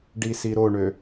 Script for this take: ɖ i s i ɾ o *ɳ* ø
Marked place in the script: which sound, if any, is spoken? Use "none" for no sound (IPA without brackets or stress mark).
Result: ɳ